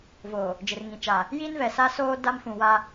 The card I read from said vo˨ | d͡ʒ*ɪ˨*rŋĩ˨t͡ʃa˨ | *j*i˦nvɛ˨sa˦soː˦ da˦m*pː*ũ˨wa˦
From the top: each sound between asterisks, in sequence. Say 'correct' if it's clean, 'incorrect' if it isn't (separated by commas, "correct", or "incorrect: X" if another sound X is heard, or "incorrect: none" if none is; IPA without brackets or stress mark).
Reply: correct, correct, incorrect: f